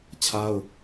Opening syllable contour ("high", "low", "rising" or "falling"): high